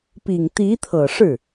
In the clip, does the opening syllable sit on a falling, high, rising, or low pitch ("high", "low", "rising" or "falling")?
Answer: low